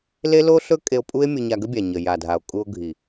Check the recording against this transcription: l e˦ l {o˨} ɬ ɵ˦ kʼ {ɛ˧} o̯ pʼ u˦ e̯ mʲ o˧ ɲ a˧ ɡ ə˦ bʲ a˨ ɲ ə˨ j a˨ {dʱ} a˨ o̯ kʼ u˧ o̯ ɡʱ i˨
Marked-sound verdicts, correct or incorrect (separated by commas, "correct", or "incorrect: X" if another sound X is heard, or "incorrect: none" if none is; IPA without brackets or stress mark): incorrect: o˦, incorrect: e˧, correct